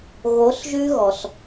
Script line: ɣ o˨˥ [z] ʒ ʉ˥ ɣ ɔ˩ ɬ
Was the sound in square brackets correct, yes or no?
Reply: no